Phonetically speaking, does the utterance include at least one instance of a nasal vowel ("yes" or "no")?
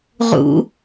no